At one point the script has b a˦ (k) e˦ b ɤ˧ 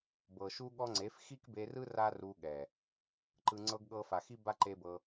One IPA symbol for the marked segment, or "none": ǃ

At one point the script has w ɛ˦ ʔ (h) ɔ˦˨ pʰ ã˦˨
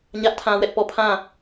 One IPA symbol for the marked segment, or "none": p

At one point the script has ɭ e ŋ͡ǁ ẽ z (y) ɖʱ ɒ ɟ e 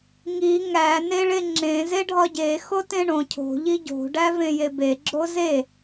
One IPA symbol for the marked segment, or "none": e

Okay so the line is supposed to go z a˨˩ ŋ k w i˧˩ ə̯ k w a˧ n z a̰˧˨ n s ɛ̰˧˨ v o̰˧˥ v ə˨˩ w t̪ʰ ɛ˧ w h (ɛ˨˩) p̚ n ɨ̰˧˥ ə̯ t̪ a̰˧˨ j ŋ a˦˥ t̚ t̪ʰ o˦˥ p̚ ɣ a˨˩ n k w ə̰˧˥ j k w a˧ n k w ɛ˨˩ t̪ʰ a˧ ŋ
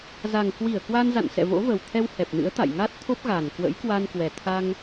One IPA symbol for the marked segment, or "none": ɛ˨˩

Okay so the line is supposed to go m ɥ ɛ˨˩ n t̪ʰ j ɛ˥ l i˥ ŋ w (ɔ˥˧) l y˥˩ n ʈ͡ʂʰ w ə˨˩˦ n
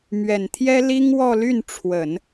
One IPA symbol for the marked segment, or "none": ɔ˥˧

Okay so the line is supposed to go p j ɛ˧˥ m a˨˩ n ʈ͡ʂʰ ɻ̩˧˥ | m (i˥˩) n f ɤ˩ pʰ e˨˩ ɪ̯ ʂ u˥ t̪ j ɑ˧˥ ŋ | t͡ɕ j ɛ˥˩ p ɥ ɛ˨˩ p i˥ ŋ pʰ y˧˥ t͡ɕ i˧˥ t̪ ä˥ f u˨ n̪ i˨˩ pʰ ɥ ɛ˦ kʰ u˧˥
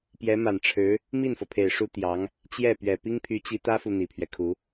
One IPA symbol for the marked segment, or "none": i˥˩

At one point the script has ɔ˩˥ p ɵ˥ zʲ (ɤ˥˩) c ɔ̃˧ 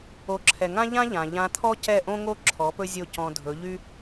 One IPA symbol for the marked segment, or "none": o˥˩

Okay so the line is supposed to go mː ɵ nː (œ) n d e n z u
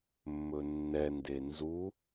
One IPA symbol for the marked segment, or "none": ɛ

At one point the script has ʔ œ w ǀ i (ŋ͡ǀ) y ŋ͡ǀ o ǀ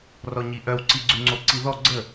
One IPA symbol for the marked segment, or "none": ɡ͡ǀ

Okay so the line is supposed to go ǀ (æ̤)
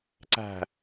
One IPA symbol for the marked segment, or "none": æ̤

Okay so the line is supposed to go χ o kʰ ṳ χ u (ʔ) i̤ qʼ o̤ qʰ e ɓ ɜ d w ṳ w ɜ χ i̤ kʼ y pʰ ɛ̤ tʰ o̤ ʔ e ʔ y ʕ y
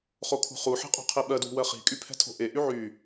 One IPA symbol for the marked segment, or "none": ħ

